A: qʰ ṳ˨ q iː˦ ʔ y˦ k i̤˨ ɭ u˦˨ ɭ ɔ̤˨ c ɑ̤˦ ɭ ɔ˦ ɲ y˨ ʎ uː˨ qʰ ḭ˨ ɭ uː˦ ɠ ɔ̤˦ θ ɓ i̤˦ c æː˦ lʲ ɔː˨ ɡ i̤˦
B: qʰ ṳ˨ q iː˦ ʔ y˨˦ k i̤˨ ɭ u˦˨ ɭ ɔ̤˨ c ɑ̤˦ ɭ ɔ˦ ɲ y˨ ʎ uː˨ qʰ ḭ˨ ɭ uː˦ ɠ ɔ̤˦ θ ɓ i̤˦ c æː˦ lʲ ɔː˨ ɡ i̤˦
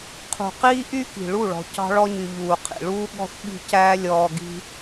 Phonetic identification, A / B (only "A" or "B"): A